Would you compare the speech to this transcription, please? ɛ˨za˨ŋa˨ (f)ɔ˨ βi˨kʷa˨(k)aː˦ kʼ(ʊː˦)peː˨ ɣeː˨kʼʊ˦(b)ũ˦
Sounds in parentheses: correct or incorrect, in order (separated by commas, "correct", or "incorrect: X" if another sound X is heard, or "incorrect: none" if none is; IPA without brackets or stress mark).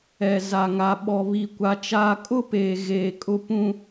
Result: incorrect: ɓ, incorrect: t͡ʃ, incorrect: ʊ˦, incorrect: p